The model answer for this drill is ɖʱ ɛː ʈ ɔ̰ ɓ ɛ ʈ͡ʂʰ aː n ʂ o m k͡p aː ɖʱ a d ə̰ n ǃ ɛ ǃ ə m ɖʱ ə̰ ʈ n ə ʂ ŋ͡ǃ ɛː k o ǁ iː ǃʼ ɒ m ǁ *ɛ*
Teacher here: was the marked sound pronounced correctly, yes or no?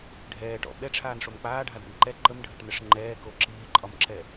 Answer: yes